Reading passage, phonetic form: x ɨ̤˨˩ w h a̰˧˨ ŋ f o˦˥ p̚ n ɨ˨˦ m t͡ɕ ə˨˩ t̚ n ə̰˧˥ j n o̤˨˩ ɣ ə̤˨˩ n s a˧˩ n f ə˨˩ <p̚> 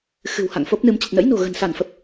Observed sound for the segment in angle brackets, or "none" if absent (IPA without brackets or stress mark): p̚